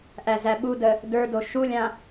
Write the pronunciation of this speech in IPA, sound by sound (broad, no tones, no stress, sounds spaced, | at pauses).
ʔ æ z æ ɓ u d ə | d ə˞ d o ʃ u lʲ ã